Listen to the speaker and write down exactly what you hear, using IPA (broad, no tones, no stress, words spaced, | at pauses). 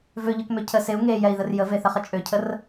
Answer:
vøʎøkmø cʰə seu̯ ŋejɛi̯ðər jəveθəχə t͡ʃʼøcʰər